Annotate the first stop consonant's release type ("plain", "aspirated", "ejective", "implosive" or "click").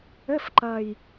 click